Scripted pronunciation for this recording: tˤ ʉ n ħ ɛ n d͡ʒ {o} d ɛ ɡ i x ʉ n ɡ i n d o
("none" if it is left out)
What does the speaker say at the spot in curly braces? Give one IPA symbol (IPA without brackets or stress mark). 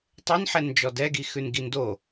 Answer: ɔ